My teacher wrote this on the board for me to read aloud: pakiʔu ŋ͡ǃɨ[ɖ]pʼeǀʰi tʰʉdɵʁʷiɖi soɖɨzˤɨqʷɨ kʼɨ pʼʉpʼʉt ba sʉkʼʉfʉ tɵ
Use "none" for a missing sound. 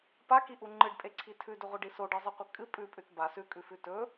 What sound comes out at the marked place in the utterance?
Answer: ɖ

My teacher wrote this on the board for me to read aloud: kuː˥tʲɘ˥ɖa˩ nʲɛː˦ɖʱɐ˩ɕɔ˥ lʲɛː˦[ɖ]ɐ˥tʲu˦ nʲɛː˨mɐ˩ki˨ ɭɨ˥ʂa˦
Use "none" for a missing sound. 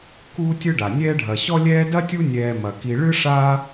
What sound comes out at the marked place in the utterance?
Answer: d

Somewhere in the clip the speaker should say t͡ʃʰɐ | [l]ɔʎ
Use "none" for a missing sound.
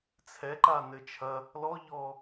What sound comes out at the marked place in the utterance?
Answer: l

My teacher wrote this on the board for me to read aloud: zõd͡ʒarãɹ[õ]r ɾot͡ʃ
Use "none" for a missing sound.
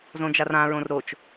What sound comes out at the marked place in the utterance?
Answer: õ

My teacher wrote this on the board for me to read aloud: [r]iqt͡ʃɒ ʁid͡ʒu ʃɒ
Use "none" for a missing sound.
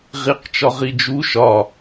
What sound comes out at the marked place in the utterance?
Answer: ʁ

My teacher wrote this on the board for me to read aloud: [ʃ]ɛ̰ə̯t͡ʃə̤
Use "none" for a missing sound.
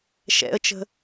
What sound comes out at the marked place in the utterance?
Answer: ʃ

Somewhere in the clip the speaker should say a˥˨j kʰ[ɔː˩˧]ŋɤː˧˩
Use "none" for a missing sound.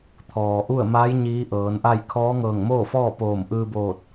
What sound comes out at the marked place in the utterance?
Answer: ɔː˧˥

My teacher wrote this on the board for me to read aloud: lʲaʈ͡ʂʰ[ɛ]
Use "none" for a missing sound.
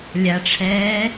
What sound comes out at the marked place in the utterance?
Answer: ɛː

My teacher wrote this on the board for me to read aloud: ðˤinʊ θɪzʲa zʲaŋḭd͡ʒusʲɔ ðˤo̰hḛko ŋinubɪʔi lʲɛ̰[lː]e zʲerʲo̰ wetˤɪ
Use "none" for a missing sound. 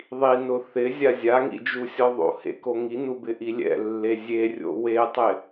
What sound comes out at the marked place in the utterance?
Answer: lː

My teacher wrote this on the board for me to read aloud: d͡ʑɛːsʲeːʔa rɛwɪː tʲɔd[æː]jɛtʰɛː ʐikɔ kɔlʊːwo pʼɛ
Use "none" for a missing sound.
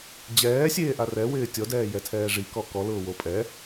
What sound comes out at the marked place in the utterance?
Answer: ɛː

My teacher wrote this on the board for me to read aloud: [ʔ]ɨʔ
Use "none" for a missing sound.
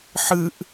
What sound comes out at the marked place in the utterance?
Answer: ħ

